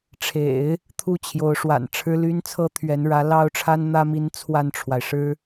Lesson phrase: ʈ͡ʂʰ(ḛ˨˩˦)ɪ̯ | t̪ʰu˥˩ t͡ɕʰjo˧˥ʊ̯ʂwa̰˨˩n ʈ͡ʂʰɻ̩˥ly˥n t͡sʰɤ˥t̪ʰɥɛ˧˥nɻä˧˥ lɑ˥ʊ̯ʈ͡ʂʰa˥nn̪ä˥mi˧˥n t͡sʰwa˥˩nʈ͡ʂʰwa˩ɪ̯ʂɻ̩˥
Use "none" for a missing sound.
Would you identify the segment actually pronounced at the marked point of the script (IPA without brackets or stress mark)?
ḛ˨˩˦